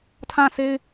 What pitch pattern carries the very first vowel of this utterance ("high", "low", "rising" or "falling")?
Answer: falling